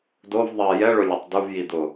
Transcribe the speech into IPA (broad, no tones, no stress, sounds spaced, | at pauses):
d o v ðˤ ɛ j ɛ ɭ ʊ lʲ ɛ tˤ d u v j i d̪ ʊ